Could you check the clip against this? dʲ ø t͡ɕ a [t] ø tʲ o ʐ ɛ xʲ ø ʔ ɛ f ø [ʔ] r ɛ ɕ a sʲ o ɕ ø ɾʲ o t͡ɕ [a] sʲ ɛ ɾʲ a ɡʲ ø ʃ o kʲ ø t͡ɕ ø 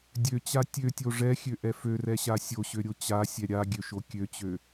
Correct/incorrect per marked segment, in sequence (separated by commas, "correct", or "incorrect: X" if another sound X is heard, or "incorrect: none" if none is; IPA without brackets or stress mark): incorrect: tʲ, incorrect: none, correct